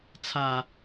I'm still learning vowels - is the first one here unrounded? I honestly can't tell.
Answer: yes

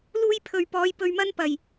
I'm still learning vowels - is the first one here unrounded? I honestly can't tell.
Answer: no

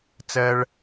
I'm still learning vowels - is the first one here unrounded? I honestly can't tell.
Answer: yes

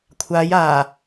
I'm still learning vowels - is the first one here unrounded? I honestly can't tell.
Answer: yes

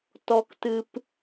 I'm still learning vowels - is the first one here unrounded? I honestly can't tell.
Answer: no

